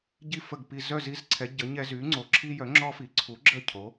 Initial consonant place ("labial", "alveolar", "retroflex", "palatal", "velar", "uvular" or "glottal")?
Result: palatal